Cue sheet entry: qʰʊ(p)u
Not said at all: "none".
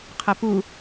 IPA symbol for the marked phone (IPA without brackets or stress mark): p